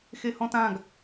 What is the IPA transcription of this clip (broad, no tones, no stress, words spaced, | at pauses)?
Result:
xehɔ̃tãɡ